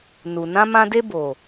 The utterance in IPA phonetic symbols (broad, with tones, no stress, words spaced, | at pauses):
nu˨nã˦mã˦ de˦boː˨